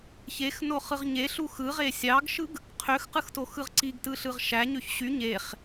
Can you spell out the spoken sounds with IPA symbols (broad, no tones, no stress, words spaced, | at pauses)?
çexno χɯʁɲe ɬuxɯʁe sʲɑɡʃɯɡ | qʰøxqɯxto xɯʁǀiɡtɯɬɯʁ ʃæɲøç ɕy ɲeχ